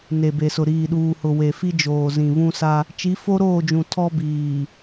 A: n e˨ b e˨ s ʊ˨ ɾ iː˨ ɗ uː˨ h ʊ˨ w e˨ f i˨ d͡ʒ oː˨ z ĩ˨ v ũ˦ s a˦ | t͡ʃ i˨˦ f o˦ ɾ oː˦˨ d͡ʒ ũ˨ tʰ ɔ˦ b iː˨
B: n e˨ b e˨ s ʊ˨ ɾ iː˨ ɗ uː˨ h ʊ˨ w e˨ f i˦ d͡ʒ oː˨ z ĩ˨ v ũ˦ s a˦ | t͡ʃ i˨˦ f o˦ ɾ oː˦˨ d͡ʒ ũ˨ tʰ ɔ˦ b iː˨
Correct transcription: B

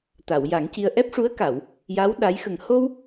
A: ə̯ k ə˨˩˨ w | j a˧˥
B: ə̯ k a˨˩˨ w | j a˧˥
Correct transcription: B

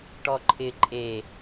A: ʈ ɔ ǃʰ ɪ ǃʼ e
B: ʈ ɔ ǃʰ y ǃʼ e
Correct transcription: A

